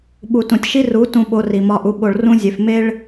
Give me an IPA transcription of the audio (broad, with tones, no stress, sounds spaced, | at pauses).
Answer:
ɓ u˨ t ũ˨ tʲ ʃ i˦ r u˨˦ t ũ˧ ɓ o˧ r i˨ m ɒ˧ ʔ u˧ ɓ o˨ ɭ r ũ˦ zʲ e˧ f m e˦ ɭ